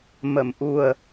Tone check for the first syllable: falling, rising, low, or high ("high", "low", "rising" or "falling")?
low